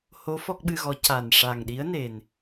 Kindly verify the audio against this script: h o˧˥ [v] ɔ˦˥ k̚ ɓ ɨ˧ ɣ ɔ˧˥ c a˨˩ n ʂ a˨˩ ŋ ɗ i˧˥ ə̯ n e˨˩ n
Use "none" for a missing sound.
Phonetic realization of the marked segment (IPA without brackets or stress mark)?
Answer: f